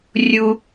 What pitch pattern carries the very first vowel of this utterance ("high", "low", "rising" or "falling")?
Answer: high